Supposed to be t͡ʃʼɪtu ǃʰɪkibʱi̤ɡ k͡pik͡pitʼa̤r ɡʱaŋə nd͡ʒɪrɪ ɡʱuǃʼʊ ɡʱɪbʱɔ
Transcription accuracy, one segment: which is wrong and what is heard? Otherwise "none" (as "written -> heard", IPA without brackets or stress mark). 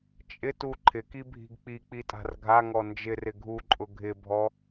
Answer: ə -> ɔ